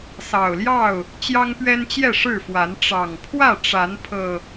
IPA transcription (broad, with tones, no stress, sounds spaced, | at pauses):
s ɑ˨˩ ʊ̯ l j ɑ˥˨ ʊ̯ | t͡ɕ j ɑ˦ ŋ p ɥ ɛ˦ n t͡ɕ j ɛ˥˨ ʂ ɻ̩˥˨ f w a˨˦ n ʈ͡ʂ ɑ˨˩ ŋ pʰ w ä˥˨ ʈ͡ʂ a˨˦ n pʰ ɤ˨˩